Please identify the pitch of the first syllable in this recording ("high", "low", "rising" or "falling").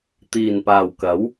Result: low